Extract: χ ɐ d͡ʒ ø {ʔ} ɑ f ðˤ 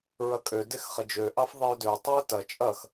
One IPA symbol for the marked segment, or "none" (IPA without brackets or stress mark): ʔ